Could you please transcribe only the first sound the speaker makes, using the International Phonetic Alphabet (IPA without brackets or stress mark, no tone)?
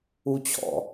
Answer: u